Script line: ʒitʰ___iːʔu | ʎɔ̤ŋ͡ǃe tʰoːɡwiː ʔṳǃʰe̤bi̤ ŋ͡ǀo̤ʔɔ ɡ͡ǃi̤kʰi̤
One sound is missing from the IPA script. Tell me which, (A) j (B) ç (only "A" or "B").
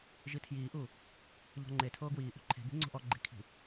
A